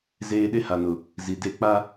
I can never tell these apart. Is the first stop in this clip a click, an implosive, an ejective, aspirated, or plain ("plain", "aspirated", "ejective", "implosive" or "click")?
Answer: implosive